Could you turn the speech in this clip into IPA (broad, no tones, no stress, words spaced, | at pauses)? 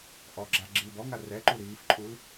ʔɔɡ͡ǁa ɡ͡ǁiːbɔŋa rɛǃu ɾiːfǃʼul